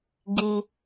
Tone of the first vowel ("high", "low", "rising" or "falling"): low